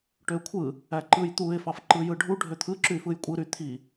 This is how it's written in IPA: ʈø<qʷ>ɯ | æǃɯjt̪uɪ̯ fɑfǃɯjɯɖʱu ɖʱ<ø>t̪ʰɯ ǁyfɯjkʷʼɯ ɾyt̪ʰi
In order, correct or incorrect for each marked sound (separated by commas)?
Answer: incorrect, correct